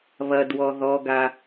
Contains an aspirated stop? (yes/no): no